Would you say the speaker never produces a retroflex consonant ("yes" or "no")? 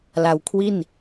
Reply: yes